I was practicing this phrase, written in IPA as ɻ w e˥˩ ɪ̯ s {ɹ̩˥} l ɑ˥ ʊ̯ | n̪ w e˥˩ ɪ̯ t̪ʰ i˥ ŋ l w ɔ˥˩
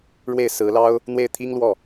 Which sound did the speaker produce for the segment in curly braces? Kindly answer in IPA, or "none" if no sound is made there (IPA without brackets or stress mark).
ɹ̩˧˥